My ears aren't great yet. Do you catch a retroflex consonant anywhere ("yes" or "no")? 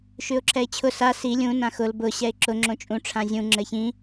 yes